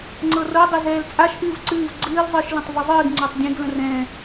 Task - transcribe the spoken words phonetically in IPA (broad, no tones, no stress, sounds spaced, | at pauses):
ŋ͡ǀ ɤ r ɤ dˤ e z ɛː l t͡sʼ a ʃ ʔ ɨː v ǀ ɨː v ɡ͡ǀ ɨː l zˤ ɨː ʃ l ə̃ tˤ v ɨ zˤ ɨː ɡ ŋ͡ǀ o tˤ dʲ ẽ ɡ l ə̃ r ɛ̃ː